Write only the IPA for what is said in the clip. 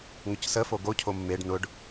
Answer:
ŋʊcsə foɡo cʰomːeɖ nʊɖ

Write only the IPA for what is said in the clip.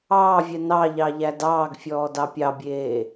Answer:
ɑːvʲɛ nɑʎɑ ʎædɑːɡfʲɔː dɑpʲɑbʲeː

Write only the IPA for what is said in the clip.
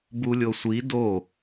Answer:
bulʲosʷi do

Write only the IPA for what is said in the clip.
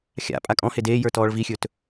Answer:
xʲa̰ pʼakʼɔ̃he deː jə˞tɔːɭvixʲɵːt

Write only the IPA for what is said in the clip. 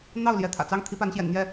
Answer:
n̪ɑ˥˩ʊ̯ljɛ˧˥ t̪ʰä̰˨˩t͡sɑ˥˩ŋ t̪ʰi˥pa˧˥nɕjɛ̰˨˩nn̪jɛ˥˩

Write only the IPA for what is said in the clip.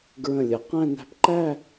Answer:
ɡɹə̃˧˩ lʲə˩˧qæ̃˥˧ næ̤˧pǃæ˥˧

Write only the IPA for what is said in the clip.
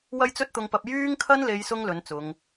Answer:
wɐ˥jt͡sɵ˥t̚t̪ʊ˧ŋpɐ˧p̚ jyː˥ŋkʰɐ˥nle˨˧j sʊ˥ŋ lɵ˨˥nt͡sʊ˨˧ŋ

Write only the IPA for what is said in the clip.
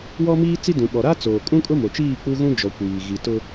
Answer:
wɔ˦miː˦ t͡si˦dũ˨ɓɔ˨ ɾa˦t͡soː˨kʼũ˦kʼʊ˦ mo˨t͡ʃiː˦˨ k͡pu˦ɣũ˦d͡ʒɔ˨ kʷiː˨ ɣi˨tʊ˦

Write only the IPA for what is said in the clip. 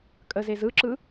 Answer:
kʼəzez ɯǁɯ

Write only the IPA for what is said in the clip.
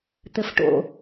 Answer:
t̪ɘfʈo̰

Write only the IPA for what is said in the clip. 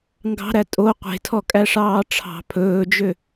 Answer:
ŋɡɑ̤ɾæ tʼo qʷe̤tʰɔkʼæʂɑː ʈ͡ʂʰɑ̤ pʰɵːd͡ʒø

